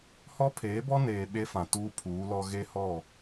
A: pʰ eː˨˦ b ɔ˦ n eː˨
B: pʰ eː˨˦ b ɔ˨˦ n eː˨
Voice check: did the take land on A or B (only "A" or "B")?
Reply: A